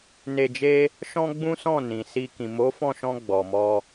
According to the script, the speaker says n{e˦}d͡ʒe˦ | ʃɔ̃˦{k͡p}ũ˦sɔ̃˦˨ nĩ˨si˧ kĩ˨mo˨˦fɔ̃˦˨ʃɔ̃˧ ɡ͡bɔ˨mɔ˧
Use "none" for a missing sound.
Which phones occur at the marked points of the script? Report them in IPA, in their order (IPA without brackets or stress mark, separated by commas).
e˧, ɡ͡b